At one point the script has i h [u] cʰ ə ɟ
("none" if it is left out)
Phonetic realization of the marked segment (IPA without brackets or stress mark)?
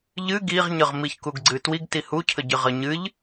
u